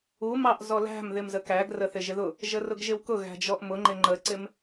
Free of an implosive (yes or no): yes